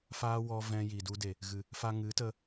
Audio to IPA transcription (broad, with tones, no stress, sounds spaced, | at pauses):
f aː˦ w ɔ˧ v ɛ̃˧ j i˨ d u˧ d e˨ | ɣ ɨ˨ | f a˦ ŋ ɨ˨˦ t ə˧